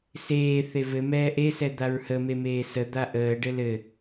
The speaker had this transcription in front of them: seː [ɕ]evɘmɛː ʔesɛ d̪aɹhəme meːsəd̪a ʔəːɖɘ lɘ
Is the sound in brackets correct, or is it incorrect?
incorrect